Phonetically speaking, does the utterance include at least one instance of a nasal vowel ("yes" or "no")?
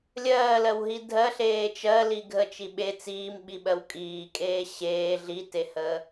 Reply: no